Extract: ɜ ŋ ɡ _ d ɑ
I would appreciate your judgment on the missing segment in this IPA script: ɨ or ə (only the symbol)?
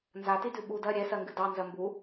ɨ